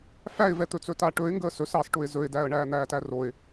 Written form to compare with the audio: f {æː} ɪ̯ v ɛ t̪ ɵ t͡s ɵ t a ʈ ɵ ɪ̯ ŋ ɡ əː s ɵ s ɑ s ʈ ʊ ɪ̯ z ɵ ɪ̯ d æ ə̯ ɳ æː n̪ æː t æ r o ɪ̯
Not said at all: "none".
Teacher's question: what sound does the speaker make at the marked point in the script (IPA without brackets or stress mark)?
æ